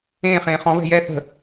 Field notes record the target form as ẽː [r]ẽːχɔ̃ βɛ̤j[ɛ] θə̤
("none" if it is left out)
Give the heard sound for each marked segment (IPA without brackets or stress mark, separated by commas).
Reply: χ, ɛ